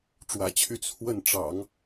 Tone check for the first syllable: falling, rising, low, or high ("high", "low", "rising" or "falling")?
low